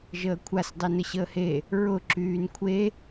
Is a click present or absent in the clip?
present